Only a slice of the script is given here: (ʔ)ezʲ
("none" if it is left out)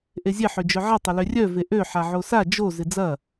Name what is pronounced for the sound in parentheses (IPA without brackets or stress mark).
ʔ